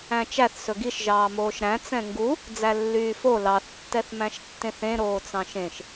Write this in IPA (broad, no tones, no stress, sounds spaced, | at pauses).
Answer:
æ̃ t͡ʃ æ θ s ɵ ɡ i ʃ ʒ ɑː m oː ʃ ɾ æ̃ t͡s ɛ̃ ŋ ɡ u | d͡z æ lː yː f o l ɑ θ tː ɛ θ m æ̃ ʃ tː ẽ θ ẽ ɾ oː t͡s ɑ̃ ʃ ẽ ʃ